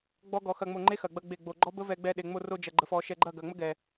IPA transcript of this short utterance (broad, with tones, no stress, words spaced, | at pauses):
ɡ͡bɔ˦ɡɔ˧ xɐ˧ŋ͡mo˧ŋ͡ǃe˦ xɐ˨ɡ͡bɐ˧ ɡ͡be˦˨ɡ͡bo˧ ɡ͡ǃɔ˦bə˦vɛ˧ ɡ͡bɛ˧ɗe˨ ŋ͡mo˧ro˧d͡ʒɐ˨ ɡ͡ǃə˨fɔ˨ ʃɛ˧ ɡ͡ǃɐ˦˨ɡɐ˨ŋ͡mə˦ ɡɛ˨